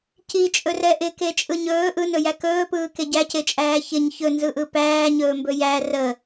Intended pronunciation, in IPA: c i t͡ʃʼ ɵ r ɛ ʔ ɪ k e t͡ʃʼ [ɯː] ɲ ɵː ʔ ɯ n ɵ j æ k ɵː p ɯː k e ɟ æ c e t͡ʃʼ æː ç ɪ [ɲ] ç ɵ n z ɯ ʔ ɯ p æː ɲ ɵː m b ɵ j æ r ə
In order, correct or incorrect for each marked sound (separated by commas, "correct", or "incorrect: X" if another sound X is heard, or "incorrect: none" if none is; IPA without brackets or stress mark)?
incorrect: ɯ, correct